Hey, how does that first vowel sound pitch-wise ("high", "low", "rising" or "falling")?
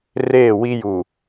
falling